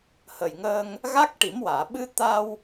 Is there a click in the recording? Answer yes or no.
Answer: no